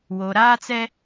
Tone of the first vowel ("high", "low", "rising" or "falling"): low